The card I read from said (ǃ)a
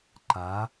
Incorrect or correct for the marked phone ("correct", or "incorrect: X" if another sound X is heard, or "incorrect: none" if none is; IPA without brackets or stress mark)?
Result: correct